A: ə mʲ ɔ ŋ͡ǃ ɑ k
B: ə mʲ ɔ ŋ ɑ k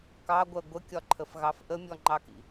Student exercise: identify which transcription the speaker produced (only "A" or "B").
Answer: A